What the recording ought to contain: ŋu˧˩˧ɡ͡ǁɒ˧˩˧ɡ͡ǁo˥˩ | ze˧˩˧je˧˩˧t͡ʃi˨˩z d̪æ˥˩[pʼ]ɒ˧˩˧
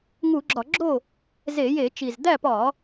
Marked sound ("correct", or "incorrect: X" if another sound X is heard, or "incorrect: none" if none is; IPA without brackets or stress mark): incorrect: p